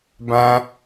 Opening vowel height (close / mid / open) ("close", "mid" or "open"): open